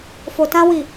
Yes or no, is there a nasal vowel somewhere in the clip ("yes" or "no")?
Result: yes